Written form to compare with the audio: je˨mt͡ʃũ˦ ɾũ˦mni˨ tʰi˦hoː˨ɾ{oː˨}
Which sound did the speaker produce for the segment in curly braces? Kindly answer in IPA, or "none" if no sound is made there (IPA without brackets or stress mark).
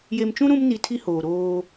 oː˦